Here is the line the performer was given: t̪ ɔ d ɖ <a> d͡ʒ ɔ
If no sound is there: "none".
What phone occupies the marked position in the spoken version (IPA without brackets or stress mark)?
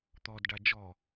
a